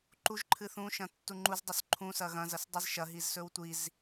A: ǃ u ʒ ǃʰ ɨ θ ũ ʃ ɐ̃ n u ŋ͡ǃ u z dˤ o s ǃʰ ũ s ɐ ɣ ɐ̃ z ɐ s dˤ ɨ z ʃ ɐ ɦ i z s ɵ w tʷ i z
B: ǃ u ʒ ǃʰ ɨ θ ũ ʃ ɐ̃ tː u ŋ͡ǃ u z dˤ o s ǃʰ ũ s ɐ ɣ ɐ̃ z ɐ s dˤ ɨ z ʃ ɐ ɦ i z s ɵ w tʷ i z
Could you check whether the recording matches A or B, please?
B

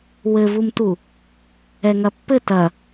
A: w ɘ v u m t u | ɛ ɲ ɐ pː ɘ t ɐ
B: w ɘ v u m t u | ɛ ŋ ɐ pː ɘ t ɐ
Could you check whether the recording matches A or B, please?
B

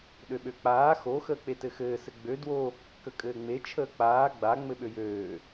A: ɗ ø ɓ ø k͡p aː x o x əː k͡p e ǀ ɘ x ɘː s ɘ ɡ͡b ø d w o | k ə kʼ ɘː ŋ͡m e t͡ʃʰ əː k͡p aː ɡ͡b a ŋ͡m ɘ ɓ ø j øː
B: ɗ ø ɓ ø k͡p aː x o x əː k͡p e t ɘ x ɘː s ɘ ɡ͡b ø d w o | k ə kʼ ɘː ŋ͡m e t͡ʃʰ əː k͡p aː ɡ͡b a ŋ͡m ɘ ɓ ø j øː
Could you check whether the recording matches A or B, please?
B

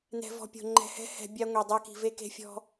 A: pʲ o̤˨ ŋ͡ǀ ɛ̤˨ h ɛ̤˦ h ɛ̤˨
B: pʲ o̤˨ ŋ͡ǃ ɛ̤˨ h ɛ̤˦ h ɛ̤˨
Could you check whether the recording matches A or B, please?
B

